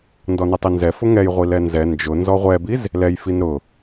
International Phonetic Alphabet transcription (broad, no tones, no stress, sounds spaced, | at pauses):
n d ɔ n ɛ tˤ i n z ɛ f ʊ ŋ ɛ j ʁʷ i l ɛ n z ɛ n d͡ʒ ʊ n z ɔ ʁʷ ɛ b i z | l ɛ j f i n ɾ ʊ